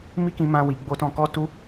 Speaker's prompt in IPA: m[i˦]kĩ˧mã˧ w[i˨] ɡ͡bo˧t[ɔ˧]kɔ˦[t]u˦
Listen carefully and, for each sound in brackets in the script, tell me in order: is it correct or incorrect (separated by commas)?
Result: correct, correct, incorrect, correct